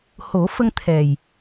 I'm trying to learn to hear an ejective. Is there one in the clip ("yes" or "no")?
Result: no